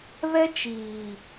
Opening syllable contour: high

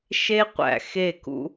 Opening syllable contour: high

